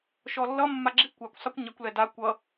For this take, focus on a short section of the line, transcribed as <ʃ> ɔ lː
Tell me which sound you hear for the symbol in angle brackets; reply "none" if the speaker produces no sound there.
ʃ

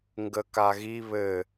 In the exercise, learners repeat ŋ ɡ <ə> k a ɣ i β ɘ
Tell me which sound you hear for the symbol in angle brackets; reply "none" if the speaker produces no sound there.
ə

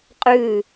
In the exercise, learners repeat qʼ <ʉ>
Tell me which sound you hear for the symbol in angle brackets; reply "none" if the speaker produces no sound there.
ʉ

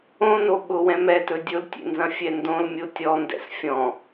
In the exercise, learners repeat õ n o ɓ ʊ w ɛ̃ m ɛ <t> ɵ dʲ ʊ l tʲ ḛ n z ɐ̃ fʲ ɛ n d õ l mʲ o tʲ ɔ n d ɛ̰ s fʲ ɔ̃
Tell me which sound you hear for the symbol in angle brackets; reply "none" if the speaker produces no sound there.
t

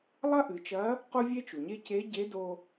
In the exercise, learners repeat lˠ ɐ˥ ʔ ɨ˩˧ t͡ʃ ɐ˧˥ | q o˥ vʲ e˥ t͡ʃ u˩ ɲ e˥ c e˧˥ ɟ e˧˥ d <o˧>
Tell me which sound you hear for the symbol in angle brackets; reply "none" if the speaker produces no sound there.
o˧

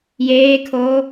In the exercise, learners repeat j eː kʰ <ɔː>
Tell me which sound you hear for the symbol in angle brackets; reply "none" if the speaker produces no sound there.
oː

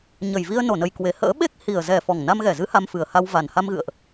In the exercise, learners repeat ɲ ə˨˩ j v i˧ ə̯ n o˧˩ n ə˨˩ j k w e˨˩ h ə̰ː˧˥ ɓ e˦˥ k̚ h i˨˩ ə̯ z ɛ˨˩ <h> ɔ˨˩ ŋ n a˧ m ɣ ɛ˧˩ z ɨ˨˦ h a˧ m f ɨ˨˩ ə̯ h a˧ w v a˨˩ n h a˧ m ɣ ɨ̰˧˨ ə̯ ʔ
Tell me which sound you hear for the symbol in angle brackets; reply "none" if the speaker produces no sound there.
f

